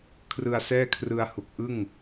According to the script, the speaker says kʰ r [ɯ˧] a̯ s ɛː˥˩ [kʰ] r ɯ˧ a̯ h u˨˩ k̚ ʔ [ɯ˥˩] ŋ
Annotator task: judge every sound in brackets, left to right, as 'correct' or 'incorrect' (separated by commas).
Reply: correct, correct, correct